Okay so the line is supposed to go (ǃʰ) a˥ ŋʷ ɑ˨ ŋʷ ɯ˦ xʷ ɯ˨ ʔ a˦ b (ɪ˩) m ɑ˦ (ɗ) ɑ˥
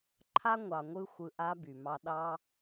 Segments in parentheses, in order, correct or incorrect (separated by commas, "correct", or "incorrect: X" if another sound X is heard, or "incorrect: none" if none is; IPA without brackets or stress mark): correct, incorrect: y˩, correct